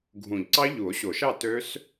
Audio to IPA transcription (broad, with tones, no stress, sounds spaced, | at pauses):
ɡʱ ũ˨˩˦ ʎ ǀ ɑ˦˥ ʎ u˨˩˦ o̯ ɕ o˨˩˦ ʃ ɑ˥˨ t ø˦˥ s